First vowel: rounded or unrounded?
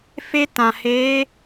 unrounded